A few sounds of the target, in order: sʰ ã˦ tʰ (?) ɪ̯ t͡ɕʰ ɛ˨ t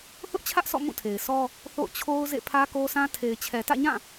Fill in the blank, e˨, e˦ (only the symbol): e˨